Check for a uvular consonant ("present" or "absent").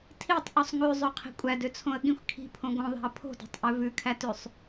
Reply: present